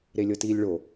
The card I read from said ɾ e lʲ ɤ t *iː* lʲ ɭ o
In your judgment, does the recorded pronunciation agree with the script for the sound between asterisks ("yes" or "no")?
yes